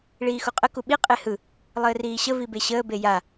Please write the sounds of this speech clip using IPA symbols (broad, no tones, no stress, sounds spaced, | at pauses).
ɭ iː x u qʼ ə k u ɓ i qʼ e h ɯ | lˠ əː r iː ɕ ə v i b e ɕ əː b e j a